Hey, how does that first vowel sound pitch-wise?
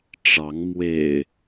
rising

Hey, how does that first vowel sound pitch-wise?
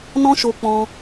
high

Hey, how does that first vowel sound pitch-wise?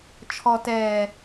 low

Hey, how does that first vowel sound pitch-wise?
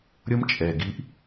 high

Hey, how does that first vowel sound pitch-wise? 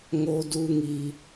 high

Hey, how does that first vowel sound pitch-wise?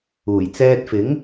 low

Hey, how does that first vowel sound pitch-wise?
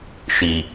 low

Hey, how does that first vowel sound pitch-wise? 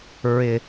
low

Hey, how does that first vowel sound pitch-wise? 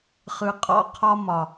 low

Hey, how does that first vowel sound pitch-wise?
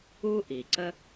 high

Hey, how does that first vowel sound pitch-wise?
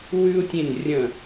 high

